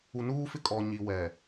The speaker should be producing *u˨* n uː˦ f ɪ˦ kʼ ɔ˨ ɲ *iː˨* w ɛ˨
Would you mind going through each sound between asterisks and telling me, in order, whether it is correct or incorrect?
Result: correct, incorrect: i˨

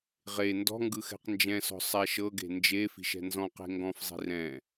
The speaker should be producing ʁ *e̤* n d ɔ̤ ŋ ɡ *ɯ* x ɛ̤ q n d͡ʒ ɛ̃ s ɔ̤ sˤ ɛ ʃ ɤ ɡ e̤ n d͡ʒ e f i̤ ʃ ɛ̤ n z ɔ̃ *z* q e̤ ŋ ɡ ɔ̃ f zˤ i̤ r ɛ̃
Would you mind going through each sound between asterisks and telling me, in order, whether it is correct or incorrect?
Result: incorrect: e, correct, incorrect: none

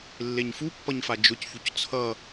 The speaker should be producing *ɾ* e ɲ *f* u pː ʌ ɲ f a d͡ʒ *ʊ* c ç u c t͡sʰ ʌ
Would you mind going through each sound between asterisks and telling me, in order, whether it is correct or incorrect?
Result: incorrect: lː, correct, correct

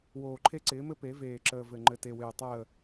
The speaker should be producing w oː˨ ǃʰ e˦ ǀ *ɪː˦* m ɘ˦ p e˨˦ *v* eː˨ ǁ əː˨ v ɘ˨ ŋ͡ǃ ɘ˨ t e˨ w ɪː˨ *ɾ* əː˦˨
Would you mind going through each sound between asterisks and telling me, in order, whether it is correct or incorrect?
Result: incorrect: ɪː˨˦, correct, incorrect: tˤ

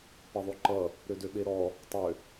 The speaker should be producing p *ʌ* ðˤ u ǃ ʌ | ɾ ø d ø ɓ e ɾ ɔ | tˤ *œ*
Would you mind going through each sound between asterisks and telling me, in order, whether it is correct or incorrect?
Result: correct, incorrect: ø

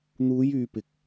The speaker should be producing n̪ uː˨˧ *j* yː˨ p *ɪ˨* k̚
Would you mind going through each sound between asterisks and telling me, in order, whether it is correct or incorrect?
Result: correct, correct

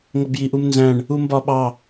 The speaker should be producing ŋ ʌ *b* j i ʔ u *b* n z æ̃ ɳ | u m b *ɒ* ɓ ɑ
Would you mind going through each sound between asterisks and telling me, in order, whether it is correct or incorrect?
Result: correct, incorrect: m, correct

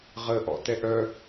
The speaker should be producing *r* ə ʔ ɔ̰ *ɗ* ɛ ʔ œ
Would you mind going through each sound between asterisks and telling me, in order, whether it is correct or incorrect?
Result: incorrect: ʁ, incorrect: t

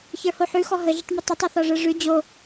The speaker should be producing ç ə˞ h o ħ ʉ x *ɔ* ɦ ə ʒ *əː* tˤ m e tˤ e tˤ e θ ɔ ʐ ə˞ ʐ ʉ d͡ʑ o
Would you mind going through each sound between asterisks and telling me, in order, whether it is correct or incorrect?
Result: correct, incorrect: ə

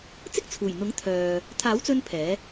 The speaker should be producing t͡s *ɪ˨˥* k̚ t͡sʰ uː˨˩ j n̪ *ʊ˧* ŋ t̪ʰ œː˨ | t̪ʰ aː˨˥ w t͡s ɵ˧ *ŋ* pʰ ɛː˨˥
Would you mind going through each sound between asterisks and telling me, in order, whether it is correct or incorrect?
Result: incorrect: ɪ˥, incorrect: ʊ˨˥, incorrect: n

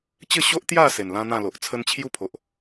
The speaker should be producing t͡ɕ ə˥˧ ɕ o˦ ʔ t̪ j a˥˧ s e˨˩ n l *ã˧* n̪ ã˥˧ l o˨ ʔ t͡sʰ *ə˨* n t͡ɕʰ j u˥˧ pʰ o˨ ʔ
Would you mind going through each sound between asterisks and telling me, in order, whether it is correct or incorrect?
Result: incorrect: ã˦, incorrect: ə˧

